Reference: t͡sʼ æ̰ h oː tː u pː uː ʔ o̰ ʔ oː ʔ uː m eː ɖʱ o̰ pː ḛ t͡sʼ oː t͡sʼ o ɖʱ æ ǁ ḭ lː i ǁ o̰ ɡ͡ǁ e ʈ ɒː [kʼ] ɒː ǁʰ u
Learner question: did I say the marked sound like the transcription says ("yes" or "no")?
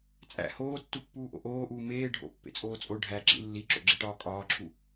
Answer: yes